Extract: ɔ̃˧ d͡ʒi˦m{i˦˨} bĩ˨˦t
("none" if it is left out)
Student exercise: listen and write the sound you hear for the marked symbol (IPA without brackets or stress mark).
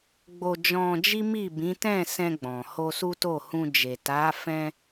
i˦˨